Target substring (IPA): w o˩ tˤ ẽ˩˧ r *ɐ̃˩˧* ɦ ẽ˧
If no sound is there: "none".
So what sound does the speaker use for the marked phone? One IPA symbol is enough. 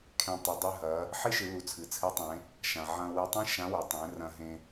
ɐ̃˧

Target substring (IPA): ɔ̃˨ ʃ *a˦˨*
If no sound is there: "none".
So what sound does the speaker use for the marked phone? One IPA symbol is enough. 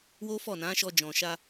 a˧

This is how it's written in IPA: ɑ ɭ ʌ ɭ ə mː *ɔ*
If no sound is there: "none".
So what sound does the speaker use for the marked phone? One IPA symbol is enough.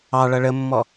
ɔ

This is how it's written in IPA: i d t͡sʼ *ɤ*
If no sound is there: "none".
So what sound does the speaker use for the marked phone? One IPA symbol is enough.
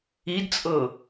ɤ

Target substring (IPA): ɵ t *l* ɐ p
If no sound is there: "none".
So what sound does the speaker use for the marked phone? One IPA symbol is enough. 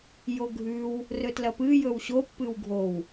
l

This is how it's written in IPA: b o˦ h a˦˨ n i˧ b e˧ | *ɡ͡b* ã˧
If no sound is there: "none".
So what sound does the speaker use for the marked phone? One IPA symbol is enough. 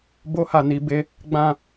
ɡ͡b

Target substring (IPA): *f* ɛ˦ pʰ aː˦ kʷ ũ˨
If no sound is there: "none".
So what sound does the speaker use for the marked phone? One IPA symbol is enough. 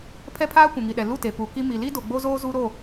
pʰ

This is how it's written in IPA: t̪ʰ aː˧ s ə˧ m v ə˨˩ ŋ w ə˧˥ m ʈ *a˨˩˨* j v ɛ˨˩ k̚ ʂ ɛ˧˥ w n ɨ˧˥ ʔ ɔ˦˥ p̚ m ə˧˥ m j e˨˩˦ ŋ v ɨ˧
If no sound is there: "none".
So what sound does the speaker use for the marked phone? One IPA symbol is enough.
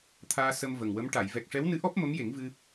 a˨˩˨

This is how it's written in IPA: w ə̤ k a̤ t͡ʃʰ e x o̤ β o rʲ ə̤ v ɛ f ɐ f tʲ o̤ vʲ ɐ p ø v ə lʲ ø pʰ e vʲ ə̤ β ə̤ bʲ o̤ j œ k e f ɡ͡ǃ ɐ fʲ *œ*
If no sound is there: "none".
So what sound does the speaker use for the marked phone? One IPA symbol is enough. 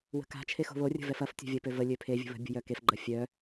œ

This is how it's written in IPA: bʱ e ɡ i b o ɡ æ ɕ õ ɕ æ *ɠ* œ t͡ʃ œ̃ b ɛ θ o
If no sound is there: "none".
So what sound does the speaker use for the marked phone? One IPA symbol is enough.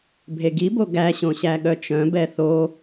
ɠ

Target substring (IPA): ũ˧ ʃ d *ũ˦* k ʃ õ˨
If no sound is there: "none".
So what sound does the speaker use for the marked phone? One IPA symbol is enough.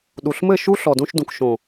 ũ˨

